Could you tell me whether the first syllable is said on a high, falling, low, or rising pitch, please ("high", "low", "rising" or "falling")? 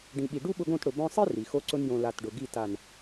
low